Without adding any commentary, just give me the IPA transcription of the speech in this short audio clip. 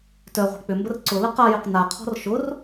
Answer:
t œ ʁʷ i̤ k͡p ʏ m b ə r ǀ ʊ l ə q a j ʏ q n a qʰ ɔ̤ r ʃ ʊ r

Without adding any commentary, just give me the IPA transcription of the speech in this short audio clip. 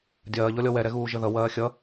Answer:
dʲ ɐː ʎ ɔ lʲ ɔ w ɛ ɾ ɛ ɣ uː ʒ ə ð ʌ w ɐː xʲ ʌ

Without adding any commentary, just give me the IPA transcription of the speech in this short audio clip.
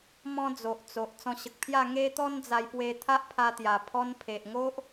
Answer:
m ɔ̃˦ d͡z o˨ ʔ t͡s o˨ ʔ t͡s ɔ̃˧ ɕ ə˨ k̚ pʰ j a˥˧ ŋ e˦ t̪ ɔ˦ n d͡z a˧ j p w e˧ t̪ʰ a˦ ʔ pʰ a˧ t̪ j a˨˩ pʰ ɔ˧ n pʰ e˨ ʔ ŋ o˦ ʔ

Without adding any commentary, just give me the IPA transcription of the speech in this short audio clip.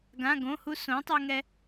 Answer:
ɡ ã˩˧˩ ɡ õ˩˧˩ h u˧ s õ˩˥ tˤ ɵ˧ ŋ ɛ˧

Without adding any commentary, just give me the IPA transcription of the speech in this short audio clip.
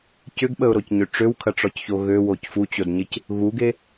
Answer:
c ʏ ɡ ɓ ə ʊ̯ ɾ o c ɲ ʏ ʈ͡ʂ ø w kʰ ɐ ʈ͡ʂ ɔ c ç o ɣ ø w o c f u t͡ɕ o d ɲ ɪ c | ɣ u ɡ e

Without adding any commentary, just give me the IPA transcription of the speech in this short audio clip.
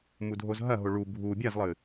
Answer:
m u dʱ o z ɦ ɐ ɦ o ɭ u bʱ u bʲ a z lˠ ɨ

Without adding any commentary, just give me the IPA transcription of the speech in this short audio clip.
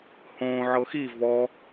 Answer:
h õ ʕ ɤ x i v ɔ

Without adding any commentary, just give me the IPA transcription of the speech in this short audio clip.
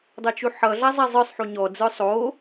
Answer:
dˤ ʌ t͡ʃ u ħ ʌ ɮ a zˤ ɛ zˤ ə˞ sˤ ħ u ɲ ɔ d͡z ə˞ sˤ o

